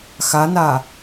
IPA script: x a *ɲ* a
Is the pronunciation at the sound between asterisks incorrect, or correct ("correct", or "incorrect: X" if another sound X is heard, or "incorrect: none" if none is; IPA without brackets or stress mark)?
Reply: incorrect: n